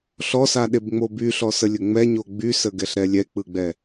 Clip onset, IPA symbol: ɬ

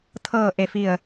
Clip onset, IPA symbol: t̪ʰ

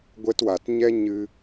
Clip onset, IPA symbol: ɡʷ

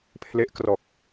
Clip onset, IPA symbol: pʰ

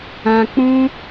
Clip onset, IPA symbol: ã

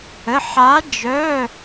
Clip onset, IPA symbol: ə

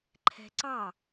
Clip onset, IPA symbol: ǃʰ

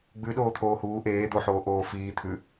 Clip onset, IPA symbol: ɡ͡b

